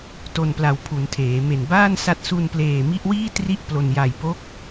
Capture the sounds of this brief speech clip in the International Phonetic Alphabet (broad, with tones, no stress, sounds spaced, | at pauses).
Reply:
t o˨˩ n p l a˨˩ w pʰ u˩˦ n tʰ eː˩˦ m e˨˩ n b aː˥˩ n s a˦˥ t̚ s u˧ n p l eː˨˩ m i˦˥ ʔ w iː˥˩ t r i˥˩ ʔ p l o˧ n j a˨˩ j p o˦˥ k̚